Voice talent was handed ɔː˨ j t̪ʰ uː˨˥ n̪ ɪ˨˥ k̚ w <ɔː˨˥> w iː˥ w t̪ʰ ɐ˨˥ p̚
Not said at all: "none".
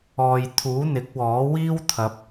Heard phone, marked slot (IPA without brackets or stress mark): ɔː˨˥